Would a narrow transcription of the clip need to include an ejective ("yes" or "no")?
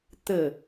no